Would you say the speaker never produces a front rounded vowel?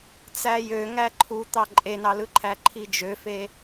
no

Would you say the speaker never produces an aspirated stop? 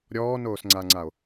yes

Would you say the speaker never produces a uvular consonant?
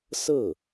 yes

